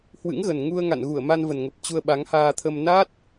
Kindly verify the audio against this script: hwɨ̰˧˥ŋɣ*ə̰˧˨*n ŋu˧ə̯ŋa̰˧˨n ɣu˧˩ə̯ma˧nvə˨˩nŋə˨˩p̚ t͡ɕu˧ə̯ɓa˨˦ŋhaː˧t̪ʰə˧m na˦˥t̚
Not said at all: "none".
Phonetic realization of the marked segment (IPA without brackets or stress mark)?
ə˨˩